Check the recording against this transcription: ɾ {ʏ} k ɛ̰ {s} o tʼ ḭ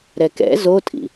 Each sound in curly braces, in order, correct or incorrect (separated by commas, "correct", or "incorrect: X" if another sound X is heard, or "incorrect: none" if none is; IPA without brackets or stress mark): incorrect: ɛ, incorrect: z